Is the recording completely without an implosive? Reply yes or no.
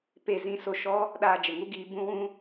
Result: no